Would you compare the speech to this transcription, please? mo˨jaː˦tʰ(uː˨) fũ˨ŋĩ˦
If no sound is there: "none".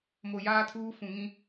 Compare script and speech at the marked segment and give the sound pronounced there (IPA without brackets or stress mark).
uː˦